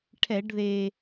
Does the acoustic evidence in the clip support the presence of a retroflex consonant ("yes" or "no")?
yes